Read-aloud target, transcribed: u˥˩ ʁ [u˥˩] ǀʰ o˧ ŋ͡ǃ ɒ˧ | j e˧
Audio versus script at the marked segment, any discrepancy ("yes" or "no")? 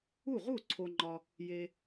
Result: no